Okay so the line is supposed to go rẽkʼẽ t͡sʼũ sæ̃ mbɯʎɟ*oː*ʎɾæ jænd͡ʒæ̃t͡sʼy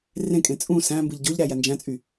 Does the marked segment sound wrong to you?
yes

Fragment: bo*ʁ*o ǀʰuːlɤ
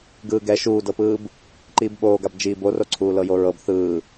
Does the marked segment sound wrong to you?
yes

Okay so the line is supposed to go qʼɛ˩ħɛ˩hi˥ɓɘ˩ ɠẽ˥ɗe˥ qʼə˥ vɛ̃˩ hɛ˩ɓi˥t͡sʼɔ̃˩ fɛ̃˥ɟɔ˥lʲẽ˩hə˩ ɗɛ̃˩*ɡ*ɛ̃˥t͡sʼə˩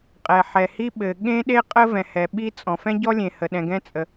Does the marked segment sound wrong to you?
no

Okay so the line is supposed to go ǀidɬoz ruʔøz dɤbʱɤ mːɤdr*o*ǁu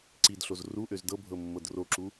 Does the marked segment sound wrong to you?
no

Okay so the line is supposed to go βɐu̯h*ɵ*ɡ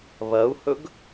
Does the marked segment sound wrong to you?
no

